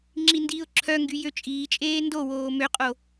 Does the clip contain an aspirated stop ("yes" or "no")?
yes